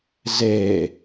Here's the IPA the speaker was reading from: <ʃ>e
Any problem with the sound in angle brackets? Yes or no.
yes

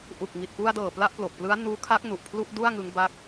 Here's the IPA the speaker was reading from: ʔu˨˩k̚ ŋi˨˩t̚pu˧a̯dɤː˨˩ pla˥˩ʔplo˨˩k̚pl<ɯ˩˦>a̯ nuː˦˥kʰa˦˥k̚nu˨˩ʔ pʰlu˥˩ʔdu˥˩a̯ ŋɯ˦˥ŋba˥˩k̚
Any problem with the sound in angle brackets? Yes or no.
yes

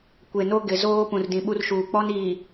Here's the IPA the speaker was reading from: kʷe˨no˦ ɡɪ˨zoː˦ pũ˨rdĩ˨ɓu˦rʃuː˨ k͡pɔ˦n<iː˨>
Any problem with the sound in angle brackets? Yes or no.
no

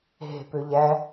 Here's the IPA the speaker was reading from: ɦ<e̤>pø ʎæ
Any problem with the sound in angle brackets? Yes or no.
no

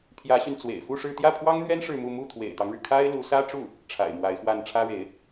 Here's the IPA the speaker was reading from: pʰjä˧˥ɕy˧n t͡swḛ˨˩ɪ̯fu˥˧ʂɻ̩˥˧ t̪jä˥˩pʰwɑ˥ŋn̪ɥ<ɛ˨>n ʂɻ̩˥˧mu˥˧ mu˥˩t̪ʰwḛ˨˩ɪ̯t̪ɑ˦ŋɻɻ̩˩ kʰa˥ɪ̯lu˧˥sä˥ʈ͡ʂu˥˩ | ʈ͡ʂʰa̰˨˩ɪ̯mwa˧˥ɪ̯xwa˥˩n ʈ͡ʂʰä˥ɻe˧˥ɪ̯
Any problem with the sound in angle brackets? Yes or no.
yes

